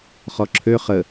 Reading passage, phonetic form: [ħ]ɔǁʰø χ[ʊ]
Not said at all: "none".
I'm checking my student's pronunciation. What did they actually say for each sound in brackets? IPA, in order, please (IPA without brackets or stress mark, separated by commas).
χ, ə